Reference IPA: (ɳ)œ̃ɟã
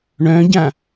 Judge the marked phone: correct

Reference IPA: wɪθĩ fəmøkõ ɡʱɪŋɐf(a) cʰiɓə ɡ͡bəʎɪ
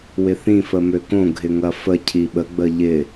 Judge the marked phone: incorrect: ə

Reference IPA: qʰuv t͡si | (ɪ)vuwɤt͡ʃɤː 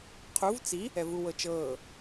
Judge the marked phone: incorrect: ɛ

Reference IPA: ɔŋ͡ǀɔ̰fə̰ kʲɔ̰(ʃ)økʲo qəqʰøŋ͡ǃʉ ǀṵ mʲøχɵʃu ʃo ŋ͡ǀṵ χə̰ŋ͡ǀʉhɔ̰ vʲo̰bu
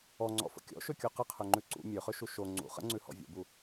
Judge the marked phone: correct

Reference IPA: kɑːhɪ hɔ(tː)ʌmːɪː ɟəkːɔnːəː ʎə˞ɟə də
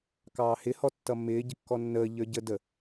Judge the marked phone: correct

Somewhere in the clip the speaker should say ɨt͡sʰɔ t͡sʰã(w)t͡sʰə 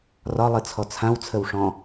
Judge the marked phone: correct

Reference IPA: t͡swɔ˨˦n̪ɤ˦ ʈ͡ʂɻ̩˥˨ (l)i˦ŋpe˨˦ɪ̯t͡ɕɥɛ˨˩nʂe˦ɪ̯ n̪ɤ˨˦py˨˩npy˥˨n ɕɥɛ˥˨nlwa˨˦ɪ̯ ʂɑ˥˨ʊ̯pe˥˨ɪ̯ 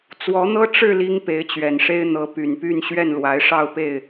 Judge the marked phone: correct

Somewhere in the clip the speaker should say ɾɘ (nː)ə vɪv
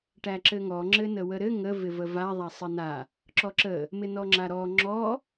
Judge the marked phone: incorrect: ŋ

